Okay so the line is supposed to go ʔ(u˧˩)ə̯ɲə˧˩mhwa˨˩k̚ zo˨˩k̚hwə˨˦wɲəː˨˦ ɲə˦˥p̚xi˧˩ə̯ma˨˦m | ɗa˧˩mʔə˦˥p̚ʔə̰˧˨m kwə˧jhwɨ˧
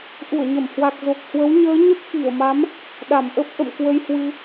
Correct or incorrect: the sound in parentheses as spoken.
correct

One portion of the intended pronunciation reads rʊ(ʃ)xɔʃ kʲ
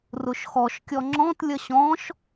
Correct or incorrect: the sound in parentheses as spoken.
correct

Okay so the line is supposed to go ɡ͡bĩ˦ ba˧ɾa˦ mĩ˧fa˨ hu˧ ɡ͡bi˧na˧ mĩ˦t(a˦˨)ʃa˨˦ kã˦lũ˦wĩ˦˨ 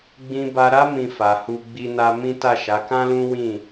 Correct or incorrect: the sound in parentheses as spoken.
correct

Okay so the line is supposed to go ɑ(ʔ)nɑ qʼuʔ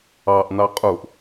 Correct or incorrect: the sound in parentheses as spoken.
correct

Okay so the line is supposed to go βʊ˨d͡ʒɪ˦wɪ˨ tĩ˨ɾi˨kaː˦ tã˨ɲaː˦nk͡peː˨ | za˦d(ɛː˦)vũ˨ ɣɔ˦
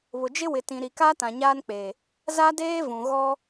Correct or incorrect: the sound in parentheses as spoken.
incorrect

